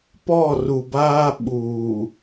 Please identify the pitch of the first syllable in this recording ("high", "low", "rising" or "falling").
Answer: falling